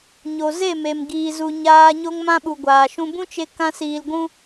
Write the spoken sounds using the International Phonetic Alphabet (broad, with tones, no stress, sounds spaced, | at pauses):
ɲ o˨ z e˦˨ m e˨ m ɡ iː˨ z u˨ ɲ aː˧ ɲ o˧ ŋ m ã˧ ɓ u˨ ɡʷ aː˨ ʃ ũ˧ b ũ˦ t͡ʃ e˧ k ã˦ s iː˧ l ɡʷ ũ˦